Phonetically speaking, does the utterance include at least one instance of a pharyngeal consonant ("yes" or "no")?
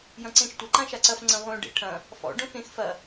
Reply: no